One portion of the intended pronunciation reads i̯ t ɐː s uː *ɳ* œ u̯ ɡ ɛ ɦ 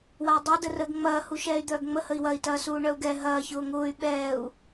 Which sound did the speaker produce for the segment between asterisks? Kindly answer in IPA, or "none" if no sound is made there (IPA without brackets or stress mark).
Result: ɳ